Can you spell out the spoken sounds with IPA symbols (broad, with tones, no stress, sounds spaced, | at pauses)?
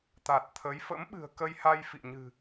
t̪ a˨˩ t̚ t̪ʰ ə˨˦ j f ə̰˧˥ m ɓ ɨ̤˨˩ ə̯ k ə˧ j h a˧ j f ḭ˧˨ ɲ ɨ̤˨˩